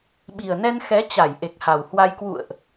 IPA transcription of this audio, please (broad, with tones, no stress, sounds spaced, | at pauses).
ɓ i˨˩ ə̯ n ɛ˧ n x ɛ˨˦ t͡ɕ a˧˩ j ʔ e˨˩ k̚ h a˨˩ w h w a˧ j k w ṵ˧˨ ə̯ ʔ